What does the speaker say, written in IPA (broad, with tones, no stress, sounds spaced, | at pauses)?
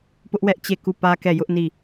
p ʊ˦ ʔ w ɛ˦ ʔ t͡ɕ e˦˨ k u˦˨ p ä˦ k ɛ˦˨ j ʊ˦ ʔ n i˦˨